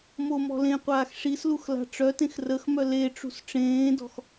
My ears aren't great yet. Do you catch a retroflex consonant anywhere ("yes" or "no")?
yes